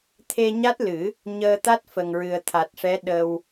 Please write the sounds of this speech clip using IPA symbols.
t̪ʰ e˧ ɲ a˦˥ t̚ l ɨ˨˩˦ | ɲ əː˧ t̪ a˦˥ t̚ f ə˨˩ ŋ ɹ ɨ˨˩ ə̯ t̪ʰ a˨˩ t̚ ʂ ɛ˧˥ ɗ ə˧ w

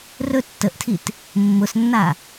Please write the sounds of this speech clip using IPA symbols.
r ɵ tː ə ʔ tʰ i t | mː ʊ s nː a

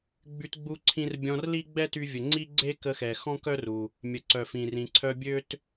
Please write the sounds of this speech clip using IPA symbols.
ɡ͡b y˧ t ɡ͡b u˧ ǀʰ ĩ˧ r bʲ ɔ̃˧ r l i˥ ɡ͡b ɛ˥ t y˧ vʲ ə˩ ŋ͡ǀ i˥ ɡ͡ǀ e˥ k ə˧ x ɛ˩ x ɔ̃˥ k œ˥ r u˩ | mʲ ə˩ ǀ œ˩ f ĩ˩ r ĩ˩ ǀʰ œ˧ bʲ ø˥ t

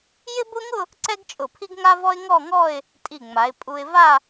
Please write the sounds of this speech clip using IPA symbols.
j ɪ˥ b ʊ˥ ŋ ʊ˥˧ | ǀ ɛ˥ ɡ t͡ʃʼ ʊ˧˩ pʰ i˥ ɡ ŋ a˥ v ɔ˥ ɪ̯ ŋ ɔ˥˧ ŋ ɔ˥˧ ɪ̯ | tʼ i˧˩ ŋ͡m a˩˧ ɪ̯ pʼ u˧ ɪ̯ v a˥˧

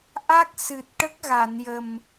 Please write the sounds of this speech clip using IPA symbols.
ʔ a˦˥ k̚ s ɨ˨˩ t̚ ʈ ə˦˥ k̚ ɣ a˨˩˨ n j ə˨˩ m

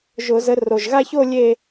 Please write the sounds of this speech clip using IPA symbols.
ʒ ʊ˧˩˧ z ə˨˦ r o˨˩ ʒ ɣ a˥˧ ç o˥˧ lʲ e˥˧

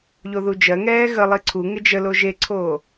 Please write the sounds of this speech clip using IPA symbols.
ʎ o ð u d͡ʒ ɜ ŋ ɛː ɣ ə lˠ i ǀʰ u ŋ ɪ d͡ʒ ə l o ʒ e ǀʰ oː

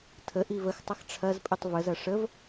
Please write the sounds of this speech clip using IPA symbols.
tʰ ə ʔ i v ə x tˤ ɐ x ʈ͡ʂʰ ɐ z pʼ i tˤ v ə z ɐ ʂ ə v

